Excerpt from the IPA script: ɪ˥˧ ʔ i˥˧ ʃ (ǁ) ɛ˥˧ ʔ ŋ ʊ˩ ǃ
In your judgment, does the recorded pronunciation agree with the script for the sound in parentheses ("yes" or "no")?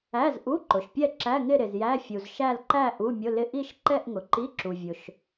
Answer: no